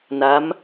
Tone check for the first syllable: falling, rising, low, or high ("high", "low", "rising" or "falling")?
rising